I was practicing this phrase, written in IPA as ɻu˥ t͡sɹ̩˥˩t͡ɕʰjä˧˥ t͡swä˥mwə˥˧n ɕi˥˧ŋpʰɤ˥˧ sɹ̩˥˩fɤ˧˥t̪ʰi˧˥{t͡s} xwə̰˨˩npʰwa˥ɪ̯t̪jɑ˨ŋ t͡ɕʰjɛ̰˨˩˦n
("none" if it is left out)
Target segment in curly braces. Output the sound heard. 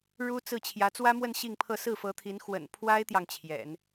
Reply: n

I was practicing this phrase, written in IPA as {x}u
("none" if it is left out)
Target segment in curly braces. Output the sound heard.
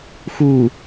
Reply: x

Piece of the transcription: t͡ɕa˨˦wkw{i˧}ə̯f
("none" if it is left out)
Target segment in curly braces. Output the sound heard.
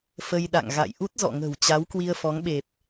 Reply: i˧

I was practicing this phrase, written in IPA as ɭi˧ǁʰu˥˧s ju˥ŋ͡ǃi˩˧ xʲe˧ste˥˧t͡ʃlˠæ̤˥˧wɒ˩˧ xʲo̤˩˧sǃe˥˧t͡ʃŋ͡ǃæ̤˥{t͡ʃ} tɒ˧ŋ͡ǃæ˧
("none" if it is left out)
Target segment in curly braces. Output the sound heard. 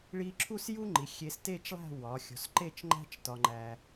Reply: t͡ʃ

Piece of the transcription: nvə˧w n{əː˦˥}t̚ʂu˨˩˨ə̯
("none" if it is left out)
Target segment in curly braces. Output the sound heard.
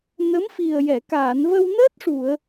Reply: əː˦˥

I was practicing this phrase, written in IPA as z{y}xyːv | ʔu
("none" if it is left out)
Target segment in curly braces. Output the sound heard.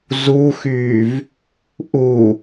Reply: u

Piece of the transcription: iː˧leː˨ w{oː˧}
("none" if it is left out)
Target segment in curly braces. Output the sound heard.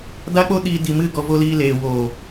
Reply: oː˨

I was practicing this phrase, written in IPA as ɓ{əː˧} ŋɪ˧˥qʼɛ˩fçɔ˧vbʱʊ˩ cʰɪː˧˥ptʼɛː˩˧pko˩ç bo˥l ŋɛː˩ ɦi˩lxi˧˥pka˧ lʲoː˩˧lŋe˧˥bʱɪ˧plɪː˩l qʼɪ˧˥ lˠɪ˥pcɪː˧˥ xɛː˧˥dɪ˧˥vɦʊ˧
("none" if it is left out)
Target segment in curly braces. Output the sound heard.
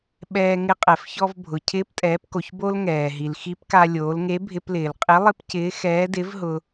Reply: ɛː˧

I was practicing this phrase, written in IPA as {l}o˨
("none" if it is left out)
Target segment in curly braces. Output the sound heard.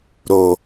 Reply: ɾ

